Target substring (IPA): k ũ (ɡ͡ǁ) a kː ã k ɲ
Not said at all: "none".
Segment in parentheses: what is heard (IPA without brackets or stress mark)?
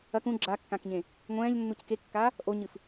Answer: ɡ͡ǁ